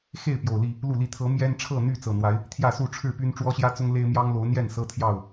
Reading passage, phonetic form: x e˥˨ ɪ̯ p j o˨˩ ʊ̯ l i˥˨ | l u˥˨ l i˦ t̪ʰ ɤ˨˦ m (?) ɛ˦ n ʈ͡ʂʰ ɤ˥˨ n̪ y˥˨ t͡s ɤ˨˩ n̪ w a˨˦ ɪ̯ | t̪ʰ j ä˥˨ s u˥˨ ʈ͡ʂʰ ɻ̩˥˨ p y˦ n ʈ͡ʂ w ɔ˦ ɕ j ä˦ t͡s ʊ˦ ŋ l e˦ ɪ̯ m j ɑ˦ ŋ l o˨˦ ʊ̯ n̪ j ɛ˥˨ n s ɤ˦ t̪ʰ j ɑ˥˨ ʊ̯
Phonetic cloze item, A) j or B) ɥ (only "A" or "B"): A